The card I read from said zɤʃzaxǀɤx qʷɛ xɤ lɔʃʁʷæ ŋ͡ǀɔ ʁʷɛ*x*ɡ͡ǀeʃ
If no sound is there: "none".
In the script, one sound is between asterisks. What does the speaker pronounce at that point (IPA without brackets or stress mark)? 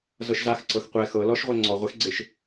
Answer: x